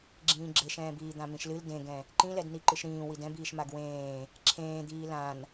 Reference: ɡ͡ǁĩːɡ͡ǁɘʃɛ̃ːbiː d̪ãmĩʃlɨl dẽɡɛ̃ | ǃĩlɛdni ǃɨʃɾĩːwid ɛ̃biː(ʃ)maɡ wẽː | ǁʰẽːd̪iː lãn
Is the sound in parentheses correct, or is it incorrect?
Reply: correct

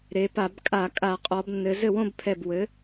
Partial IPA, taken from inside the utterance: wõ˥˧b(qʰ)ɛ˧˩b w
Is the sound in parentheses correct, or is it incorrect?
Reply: incorrect: pʰ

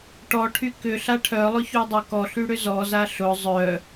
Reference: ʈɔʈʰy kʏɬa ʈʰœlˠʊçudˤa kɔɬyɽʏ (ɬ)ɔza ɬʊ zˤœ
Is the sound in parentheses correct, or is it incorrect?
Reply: incorrect: z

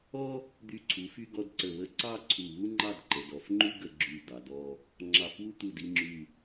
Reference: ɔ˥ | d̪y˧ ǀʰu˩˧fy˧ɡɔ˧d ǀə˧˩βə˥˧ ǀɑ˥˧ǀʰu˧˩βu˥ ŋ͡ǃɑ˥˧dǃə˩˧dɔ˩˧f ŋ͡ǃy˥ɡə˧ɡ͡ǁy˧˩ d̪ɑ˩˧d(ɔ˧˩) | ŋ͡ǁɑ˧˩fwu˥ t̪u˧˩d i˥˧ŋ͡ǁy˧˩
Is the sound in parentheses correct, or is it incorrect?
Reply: incorrect: ɔ˥˧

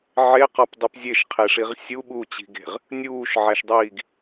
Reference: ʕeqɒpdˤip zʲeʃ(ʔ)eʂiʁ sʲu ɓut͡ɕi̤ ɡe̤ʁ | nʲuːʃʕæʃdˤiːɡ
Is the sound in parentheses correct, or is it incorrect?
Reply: incorrect: qʰ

